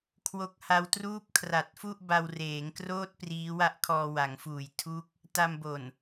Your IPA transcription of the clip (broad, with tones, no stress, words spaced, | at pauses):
kʰwo˦˥k̚ha˦˥w truː˥˩p̚kʰra˨˩t̚fu˥˩ʔ ba˧wreː˩˦ŋkroː˥˩t̚ priː˦˥wa˥˩ʔkʰɔː˧ wa˩˦ŋfuː˨˩j tʰu˦˥k̚ | ta˧mbo˨˩n